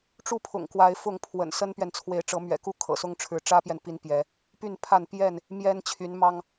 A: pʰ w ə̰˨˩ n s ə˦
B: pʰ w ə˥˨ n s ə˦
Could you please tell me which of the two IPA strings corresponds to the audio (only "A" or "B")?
A